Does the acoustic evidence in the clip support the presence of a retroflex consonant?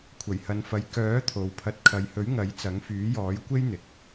no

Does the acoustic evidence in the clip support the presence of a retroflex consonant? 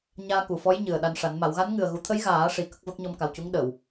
yes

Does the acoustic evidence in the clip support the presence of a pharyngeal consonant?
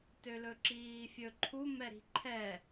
no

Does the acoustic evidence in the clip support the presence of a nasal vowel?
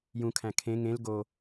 yes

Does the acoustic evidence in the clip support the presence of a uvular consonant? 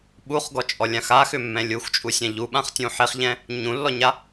yes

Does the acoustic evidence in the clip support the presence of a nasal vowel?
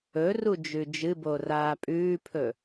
no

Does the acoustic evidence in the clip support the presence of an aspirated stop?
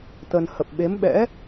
no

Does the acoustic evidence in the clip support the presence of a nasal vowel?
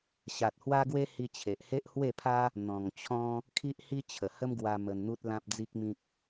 yes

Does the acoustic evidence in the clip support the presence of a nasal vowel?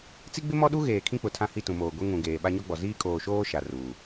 yes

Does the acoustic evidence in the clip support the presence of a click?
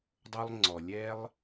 yes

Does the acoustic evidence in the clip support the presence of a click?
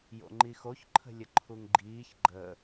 yes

